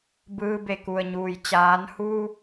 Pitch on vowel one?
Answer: rising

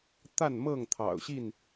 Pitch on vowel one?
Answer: falling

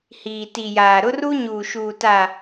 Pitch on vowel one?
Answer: low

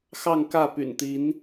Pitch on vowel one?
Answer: falling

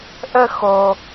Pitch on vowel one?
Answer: high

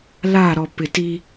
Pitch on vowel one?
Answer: falling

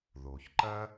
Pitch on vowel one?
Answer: low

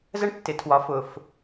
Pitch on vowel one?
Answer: high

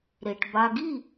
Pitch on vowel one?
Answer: low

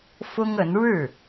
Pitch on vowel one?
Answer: high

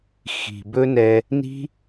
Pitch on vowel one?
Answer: low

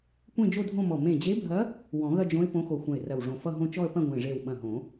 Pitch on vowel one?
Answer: falling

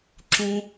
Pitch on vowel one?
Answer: high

